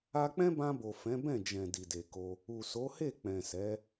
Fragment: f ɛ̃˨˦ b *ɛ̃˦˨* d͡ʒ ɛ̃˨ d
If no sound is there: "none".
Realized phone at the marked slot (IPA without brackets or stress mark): ɛ̃˦˨